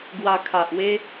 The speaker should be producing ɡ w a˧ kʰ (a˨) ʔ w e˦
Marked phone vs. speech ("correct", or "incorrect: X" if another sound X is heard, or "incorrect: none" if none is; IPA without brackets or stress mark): correct